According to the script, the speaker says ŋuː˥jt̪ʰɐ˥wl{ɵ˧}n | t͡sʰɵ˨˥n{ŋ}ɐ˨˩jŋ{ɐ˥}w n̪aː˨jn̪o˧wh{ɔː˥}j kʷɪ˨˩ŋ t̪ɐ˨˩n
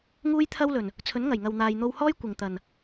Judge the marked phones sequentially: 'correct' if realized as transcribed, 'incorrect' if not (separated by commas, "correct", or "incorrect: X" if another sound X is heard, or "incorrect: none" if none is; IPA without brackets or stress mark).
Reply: incorrect: ɵ˨˩, correct, incorrect: ɐ˨, correct